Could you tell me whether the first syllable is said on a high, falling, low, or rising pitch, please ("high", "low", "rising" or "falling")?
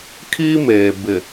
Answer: high